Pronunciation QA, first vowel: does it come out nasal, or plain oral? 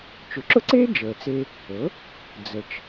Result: oral